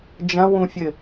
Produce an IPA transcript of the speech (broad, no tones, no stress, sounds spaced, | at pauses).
d͡ʒ ɐ̃ w ũ fʲ ɘ